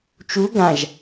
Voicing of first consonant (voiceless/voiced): voiceless